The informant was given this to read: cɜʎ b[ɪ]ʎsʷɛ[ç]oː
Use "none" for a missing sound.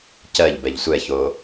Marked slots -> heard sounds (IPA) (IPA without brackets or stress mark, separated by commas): ɛ, ç